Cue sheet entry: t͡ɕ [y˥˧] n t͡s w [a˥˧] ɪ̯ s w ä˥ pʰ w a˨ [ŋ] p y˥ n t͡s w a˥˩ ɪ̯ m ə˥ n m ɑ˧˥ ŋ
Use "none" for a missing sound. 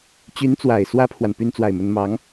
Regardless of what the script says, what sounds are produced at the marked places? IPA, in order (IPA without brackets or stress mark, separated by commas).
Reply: y˧˥, a˨˩, n